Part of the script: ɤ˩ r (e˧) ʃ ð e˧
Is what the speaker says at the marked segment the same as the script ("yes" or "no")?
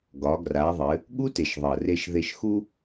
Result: yes